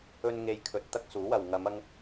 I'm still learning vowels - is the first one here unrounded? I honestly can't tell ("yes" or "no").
no